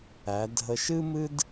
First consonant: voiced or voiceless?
voiced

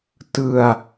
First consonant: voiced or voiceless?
voiceless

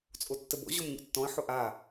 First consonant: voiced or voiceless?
voiceless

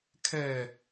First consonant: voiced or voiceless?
voiceless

